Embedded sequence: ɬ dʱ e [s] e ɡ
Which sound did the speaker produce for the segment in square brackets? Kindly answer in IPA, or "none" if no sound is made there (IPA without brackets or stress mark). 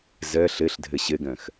ɕ